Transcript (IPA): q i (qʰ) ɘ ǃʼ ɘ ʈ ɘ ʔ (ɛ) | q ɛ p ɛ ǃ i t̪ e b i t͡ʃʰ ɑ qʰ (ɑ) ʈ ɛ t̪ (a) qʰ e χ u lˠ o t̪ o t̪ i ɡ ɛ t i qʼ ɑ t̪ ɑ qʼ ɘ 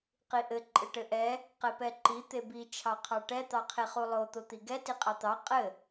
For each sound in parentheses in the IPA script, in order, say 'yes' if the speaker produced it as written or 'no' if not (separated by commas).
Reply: no, yes, yes, no